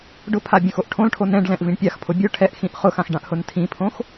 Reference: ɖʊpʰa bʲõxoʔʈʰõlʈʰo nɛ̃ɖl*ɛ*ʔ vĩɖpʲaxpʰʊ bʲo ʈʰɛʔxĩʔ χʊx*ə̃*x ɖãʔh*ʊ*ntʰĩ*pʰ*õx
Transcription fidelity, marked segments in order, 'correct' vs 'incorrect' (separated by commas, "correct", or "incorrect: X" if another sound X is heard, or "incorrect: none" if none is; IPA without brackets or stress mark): incorrect: ɛ̃, incorrect: ã, correct, correct